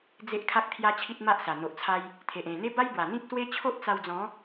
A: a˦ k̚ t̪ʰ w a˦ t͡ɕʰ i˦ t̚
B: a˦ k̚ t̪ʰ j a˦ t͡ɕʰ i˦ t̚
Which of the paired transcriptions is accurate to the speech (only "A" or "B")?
B